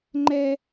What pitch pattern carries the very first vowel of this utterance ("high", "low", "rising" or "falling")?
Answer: high